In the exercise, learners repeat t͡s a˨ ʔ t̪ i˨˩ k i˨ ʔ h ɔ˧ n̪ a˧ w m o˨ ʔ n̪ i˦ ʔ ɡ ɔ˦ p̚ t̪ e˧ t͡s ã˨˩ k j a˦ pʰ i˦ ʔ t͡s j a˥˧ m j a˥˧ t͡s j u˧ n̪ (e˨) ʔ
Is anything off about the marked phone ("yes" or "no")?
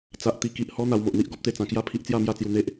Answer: yes